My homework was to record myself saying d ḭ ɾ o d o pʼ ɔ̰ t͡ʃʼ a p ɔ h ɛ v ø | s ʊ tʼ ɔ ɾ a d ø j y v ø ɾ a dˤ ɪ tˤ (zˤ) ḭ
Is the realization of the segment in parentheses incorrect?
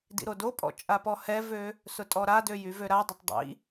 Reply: yes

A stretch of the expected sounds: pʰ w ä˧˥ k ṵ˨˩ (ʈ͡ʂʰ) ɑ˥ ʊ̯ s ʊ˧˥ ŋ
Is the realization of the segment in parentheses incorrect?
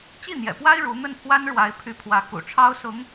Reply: no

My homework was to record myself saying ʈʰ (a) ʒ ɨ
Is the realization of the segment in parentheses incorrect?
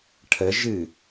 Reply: yes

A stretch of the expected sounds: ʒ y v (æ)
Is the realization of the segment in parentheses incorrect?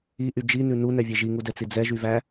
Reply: no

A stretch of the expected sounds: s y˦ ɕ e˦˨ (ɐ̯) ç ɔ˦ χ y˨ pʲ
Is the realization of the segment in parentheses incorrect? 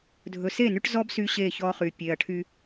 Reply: yes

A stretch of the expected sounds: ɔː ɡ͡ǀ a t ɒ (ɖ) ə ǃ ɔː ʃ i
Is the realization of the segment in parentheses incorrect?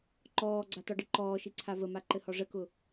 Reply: no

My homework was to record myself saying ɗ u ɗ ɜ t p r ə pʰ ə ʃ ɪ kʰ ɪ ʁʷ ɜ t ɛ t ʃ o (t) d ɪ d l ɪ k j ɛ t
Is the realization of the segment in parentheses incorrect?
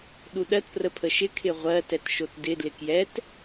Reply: no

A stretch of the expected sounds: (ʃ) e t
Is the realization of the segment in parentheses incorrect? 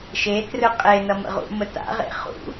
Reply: no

